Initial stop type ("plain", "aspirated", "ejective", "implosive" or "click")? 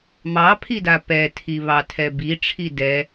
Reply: aspirated